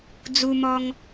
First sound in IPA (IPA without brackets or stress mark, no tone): d͡z